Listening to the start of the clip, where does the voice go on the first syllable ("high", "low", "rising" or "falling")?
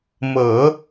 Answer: low